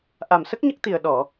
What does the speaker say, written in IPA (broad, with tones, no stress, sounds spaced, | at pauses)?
ʔ a˨˩ m s ə˦˥ k̚ ɲ ə˦˥ k̚ t̪ i˨˩ ə̯ ɗ ɔ˨˩˨